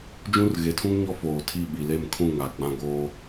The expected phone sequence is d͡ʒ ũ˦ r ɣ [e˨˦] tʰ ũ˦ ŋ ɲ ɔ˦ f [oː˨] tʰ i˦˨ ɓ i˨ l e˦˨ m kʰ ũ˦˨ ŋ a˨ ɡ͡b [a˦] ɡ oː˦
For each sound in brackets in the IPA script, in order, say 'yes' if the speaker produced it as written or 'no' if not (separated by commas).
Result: yes, yes, no